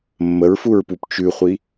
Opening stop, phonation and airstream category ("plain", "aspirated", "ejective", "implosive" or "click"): plain